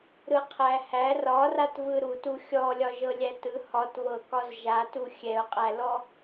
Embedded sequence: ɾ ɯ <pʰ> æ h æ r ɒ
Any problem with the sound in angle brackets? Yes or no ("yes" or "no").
yes